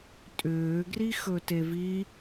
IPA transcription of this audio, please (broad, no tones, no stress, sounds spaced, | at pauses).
tʼ ʏː ɡ r i x ɵ t e v i